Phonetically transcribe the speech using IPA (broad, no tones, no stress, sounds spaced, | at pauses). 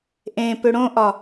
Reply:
ʔ ẽ p ʏ ɽ õ ʔ ɒ